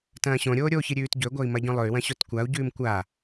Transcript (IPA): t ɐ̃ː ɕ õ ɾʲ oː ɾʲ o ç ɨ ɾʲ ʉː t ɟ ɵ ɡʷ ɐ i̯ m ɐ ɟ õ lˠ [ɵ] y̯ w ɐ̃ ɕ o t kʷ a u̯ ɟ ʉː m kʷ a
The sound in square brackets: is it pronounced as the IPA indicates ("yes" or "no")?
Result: yes